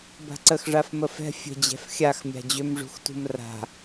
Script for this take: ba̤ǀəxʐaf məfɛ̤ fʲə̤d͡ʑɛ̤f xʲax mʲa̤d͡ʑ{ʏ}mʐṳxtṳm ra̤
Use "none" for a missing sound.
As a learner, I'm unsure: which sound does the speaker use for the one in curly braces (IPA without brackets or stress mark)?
ʏ